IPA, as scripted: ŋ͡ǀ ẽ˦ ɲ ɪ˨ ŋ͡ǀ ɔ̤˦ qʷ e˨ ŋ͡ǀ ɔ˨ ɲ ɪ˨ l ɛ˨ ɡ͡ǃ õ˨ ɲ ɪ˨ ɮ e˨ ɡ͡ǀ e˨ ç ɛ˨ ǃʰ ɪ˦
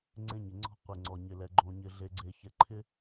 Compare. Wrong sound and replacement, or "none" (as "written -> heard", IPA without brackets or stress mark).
none